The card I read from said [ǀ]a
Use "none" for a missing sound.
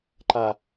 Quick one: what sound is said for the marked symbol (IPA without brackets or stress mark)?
ǃ